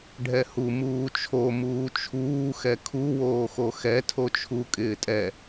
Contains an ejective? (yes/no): yes